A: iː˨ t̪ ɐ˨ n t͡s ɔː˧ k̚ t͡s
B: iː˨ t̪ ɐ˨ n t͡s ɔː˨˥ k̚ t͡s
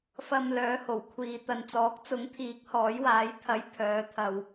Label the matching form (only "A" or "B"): B